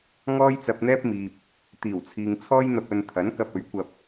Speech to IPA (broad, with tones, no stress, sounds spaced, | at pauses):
ŋ ɔː˥ j t͡s ɐ˧ p̚ n̪ ɛː˥ p̚ m iː˨ p̚ | t̪ iː˨˩ w t͡sʰ iː˨ ŋ t͡sʰ ɔː˥ j n̪ ɐ˧ p̚ ɵ˧ n t̪ʰ ɐ˨˥ n k ɐ˧ p̚ ɵ˨˥ ɥ kʷ ɐ˧ p̚